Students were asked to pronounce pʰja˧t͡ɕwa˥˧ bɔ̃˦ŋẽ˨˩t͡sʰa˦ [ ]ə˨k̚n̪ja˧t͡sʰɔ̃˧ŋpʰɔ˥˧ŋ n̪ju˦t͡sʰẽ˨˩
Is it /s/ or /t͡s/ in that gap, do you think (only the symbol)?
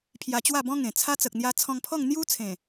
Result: t͡s